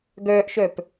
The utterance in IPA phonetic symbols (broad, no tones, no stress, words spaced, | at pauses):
ɡœːʔʃœp